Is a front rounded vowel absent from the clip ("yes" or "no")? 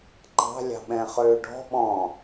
no